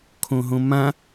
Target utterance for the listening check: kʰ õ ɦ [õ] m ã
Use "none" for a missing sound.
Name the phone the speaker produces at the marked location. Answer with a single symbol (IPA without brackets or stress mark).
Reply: õ